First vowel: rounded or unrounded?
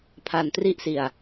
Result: unrounded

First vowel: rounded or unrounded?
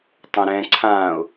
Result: rounded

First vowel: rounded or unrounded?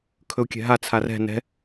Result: rounded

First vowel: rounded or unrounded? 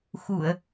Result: rounded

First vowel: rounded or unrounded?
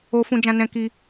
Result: rounded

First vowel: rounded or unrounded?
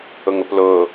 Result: rounded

